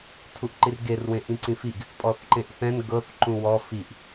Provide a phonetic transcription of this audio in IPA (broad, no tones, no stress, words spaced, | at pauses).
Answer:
tʰuʔǃirɡer wẽʔĩǀĩfiɡ | pʼɔθǃẽʔθɛ̃n ɡɤθ ǃũwɔ fiʔ